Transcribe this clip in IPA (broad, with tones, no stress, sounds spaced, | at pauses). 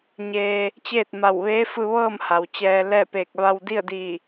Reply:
ɲ eː˧ | t͡ɕ eː˥˨ t̚ m a˧˩ w ʋ eː˧˥ f ɯː˧ ʋ ɤː˥˨ m h a˩ w t͡ɕ ɛː˧ l ɛː˥˨ p eː˧˩ k̚ ʋ a˧ w d i˥˨ ə̯ d i˧˩